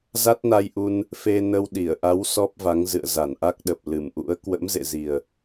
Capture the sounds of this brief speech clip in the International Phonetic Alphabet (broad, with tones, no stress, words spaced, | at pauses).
za˦˥t̚na˧jʔu˧n | fe˧nə˧w ɗi˧˩ə̯ʔa˨˦w sɔ˦˥p̚va˨˦ŋ zɨ̰˧˨ə̯za˧˩nʔa˦˥k̚ɗə˨˩p̚ lɨ˧˩mʔṵ˧˥ə̯ kwə̰˧˥mzḛ˧˨zi˨˩ə̯